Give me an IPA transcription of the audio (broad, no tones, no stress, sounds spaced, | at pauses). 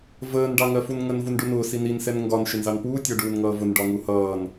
v əː n ɖ ɑ ŋ ɜ f u n ŋ ə n v u n ɖ u n ʊː s i n i n s ɛ n ŋ ɡ ɒ n ʃ ɪ n z ɑ n p uː tʲ ɔ ɖ uː n ŋ ʌː v ʊ n ɖ ɒ ŋ u h ʌː n